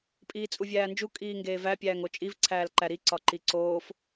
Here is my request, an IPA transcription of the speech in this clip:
pʼ iː t͡sʼ u vʲ æː n d͡ʒ u kʼ iː ŋ ɡ eː v æ pʲ æː ŋ o t͡ʃʼ i v ǀʰ æː l ǃ æ ɾ i ǀ ɒ ǃ i ǀ oː f

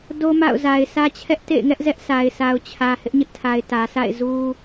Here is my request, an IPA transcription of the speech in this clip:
d o˦ m a̰˦˨ ʊ̯ z a˨ ɪ̯ sʰ ä˦ t͡ɕʰ ɛ˦ ʔ t ḛ˦˨ ɪ̯ ŋ ɛ˦ ʔ z ɛ˦ ʔ s a˨ ɪ̯ s a˨ ʊ̯ t͡ɕʰ ä˨ h ɪ˦ ʔ ɲ ɪ˦ ʔ tʰ a˨ ɪ̯ t ä˨ s a̰˦˨ ɪ̯ z u˦

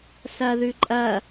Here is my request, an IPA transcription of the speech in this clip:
s ɐ ð ʉ ǃʼ ɐ

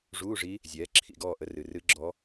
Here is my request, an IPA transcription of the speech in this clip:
ʐ uː˧˥˧ ʐ i˧˥ | zʲ ɛː˩˥ ǁʰ ḭ˧˩ ɡ ɔː˧˩ ʔ ə˩˥ r ɨ˩ r ɨ˧˥ ɡ͡ǁ ɔ˧˥

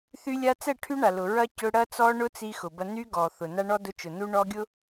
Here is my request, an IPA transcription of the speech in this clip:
θ y˦ lʲ a˦ t͡s ɛ˦˨ ʈʰ y˦ ɳ a˨ l ʊ˨ ɹ ɐ˦ c ʊ˦ ɽ ɐ˦ t͡s ɔ˦ ɳ ʊ˦ t͡s i˦ x ʊ˨ b ɐ˦ n y˦ ɡ ɔ˨ θ ʊ˨ n a˦ ɳ ɔ˦ d ʊ˦ t͡ʃ ʊ˨ n u˦ ɳ ɔ˦ ɡʲ ʊ˦

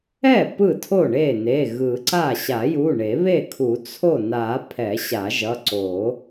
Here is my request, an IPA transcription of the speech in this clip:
ɛ˥˩ p ɯ˥˩ tʰ o˥˩ ɳ e˥˩ n e˩˧˩ ɣ ɯ˨˩˦ ǀ a˥˩ ɕ a˨˩˦ j u˩˧˩ ɳ e˨˩˦ β e˥˩ kʰ u˨˩˦ t͡sʰ o˥˩ n a˨˩˦ pʰ ɛ˨˩˦ ɕ a˨˩˦ ʒ ʌ˩˧˩ ǀ o˨˩˦

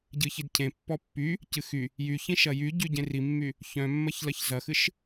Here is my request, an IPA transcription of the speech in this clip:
ɟ ɨ ç i d cʰ ẽ pː ɔ pː y | c ɨ x y | j y ç ĩ ʃ ɐ j y ɟ y ɟ ẽ r i mː y | ç œ̃ mː ɐ ç l ɐ ç z ɐ x ɨ ʃ

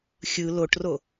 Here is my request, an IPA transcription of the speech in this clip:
xʲ ɯ l o ʈ r o

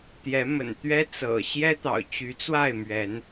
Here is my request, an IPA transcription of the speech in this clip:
t̪ j ɛ˨˦ m ə̰˨˩ n t̪ ɥ ɛ˦ t͡s ɤ̰˨˩ ɕ j ɛ˦ t̪ ɑ̰˨˩ ʊ̯ t͡ɕ y˨˦ t͡s w a˥˨ ɪ̯ m ɥ ɛ˨˦ n

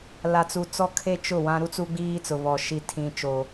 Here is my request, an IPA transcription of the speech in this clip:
l a˨ t͡s u˨ t͡s ɔ˦ kʰ e˦ t͡ʃ ʊ˦˨ w ã˦ ɾ u˦ t͡s u˦ ɡ͡b iː˦ t͡s ʊ˨ β ɔ˨ ʃ i˦ tʰ ĩ˦ t͡ʃ o˦

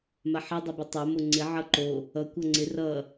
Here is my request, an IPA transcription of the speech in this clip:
m a ħ ʌ dˤ ʌ b ə tˤ a m o ŋ͡ǀ ɪ ʕ ʌ ǃ o | ʌ kʷ ʌ ŋ͡ǀ ɪ r ʌ

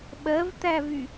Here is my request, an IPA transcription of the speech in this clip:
ɓ ɜ v t̪ æ v y

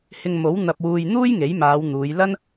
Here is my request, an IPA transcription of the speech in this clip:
h ɪ˧ ŋ m o˨˥ w n̪ ɐ˧ p̚ w uː˧ j n̪ uː˥ j ŋ e˨˥ j m aː˨˧ w n̪ uː˨˧ j l ɐ˥ n

